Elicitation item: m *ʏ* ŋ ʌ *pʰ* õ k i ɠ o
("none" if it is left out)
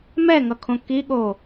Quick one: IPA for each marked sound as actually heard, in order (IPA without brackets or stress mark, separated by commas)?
ɛ, kʰ